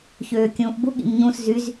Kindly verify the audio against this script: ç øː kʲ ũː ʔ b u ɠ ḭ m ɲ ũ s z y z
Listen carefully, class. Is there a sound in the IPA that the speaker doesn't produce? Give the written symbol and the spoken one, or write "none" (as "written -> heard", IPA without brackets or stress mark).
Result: none